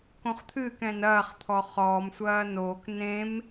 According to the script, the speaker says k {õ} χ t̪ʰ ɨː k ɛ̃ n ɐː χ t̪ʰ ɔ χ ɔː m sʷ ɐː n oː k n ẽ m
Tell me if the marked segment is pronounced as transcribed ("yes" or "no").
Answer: yes